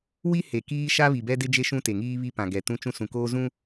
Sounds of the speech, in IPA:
wi˦ he˨kiː˦ʃa˦ βi˨bɛ˦dɪ˦d͡ʒe˦ ʃũ˦te˨ŋiː˦ βi˦pã˨ɡɛ˨ tũ˦t͡ʃũ˦ sũ˨koː˦ zũ˦

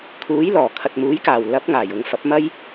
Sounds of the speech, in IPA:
kʰuː˨˥jlɔː˨˩kʰɐ˨t̚muː˨˥j kaː˨˩w lɐ˨˥p̚ ŋaː˨˩jʊ˧ŋ fɐ˨˥p̚mɐ˥j

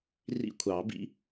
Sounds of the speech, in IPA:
rḭ˦˥kʷʰɑ˨˩˦bḭ˦˥

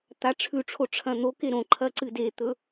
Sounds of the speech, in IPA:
t̪aʈ͡ʂʰʉʈ͡ʂʰo ʈ͡ʂʰɐ̃n̪oke ɾõǃʰɐ ǀɨdet̪ɵ

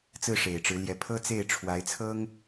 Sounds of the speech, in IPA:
t͡sɹ̩˥˩ʂe˨˩ɪ̯ʈ͡ʂɻ̩˧˥ljɛ˧˥ pʰɤ˥t͡se˥˩ɪ̯ ʈ͡ʂʰwa˧˥ɪ̯t͡sʰɤ˥ŋ

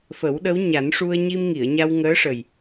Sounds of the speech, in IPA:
fə˨˩˦wɗə˧˥wɲa˨˩˦nʂu˧ə̯ ɲi˧mŋi˨˩˨ə̯ɲa˧w ŋəː˧˥ʂə˨˩j

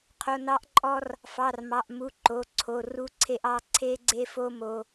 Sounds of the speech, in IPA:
qʰo˩˧˩nɑ˧ʔǃʼɔ˧r | fɑ˩˧˩rmɑ˩˧˩ʔmu˩˧˩ ǃo˩˧˩ǀʰo˩˧˩ru˧ǀʰe˧ʔ ɑ˧ ǀʰe˧ɡ͡ǀe˧fo˧ mo˧

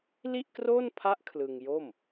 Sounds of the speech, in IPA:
li˥˩ʔkroː˥˩npʰa˦˥ʔ kʰlɯ˧ŋjo˥˩m

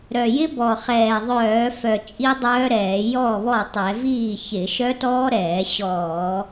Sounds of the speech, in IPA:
ɾœ˨˩jɪ˦˥bɔ˨˩ χɛː˨˩ðˤœː˧˩˧fœ˨˩ t͡ʃʼi˦˥dˤœː˦˥ɾɛː˧˩˧ jɔ˥˩βɔ˥˩tˤɛ˧˩˧ viː˥˩çɪ˧˩˧ ʃœ˦˥tɔː˦˥ɾɛː˧˩˧ ɕɔː˧˩˧

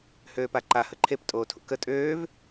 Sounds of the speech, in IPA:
høːpaǃa həǃʰep tʼoːtʰṵkə tʼøːv

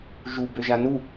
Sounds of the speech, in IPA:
ʒu bøʒanu

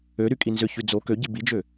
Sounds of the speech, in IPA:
øɾy kʼinzʏçy d͡zo køɟi bid͡ʒø

